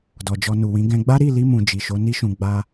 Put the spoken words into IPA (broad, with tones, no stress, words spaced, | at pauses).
dɔ˨d͡ʒɔ˧nu˨wĩ˨˦ ɡɛ̃˧ɡ͡ba˦ ɾi˦˨li˧mũ˨ d͡ʒi˨ʃo˨˦ni˦ʃũ˧ ɡ͡ba˧